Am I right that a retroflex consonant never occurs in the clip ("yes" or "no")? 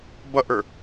yes